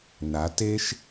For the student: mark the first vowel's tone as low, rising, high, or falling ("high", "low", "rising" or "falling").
rising